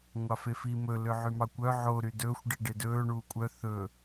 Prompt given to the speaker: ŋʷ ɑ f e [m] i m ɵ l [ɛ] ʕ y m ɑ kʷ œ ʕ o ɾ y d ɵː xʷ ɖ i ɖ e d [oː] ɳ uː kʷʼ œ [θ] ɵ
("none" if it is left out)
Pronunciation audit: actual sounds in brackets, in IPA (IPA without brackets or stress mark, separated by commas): f, ø, ɵː, θ